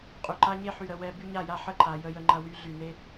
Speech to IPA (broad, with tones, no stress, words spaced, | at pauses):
qʼy˨ǃa˦ɲe˦ ħy˨ɾə˨ wɛ˦ by˦ɲa˦˨ja˦ħə˦ ǃa˨ jə˦jə˦ŋ͡ǃɐ˦ wy˦ɮy˨ ne˦